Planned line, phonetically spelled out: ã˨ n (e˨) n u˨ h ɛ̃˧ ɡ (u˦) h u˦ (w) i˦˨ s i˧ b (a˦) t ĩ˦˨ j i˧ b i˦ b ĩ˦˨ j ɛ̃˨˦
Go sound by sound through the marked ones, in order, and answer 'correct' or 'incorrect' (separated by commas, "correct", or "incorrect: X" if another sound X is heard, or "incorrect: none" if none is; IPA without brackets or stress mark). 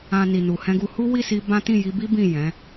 incorrect: i˨, incorrect: u˧, correct, incorrect: ã˦